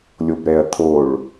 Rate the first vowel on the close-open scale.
mid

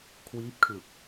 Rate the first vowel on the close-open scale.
close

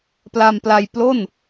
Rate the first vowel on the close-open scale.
open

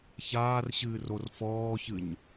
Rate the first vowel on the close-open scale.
open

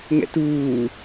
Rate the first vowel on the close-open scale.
mid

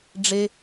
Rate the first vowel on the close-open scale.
mid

